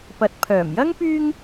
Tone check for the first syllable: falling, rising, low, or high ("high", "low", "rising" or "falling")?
low